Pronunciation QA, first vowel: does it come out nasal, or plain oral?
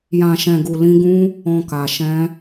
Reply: nasal